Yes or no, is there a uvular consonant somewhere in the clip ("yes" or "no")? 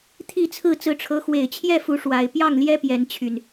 no